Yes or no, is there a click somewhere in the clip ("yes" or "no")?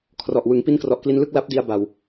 no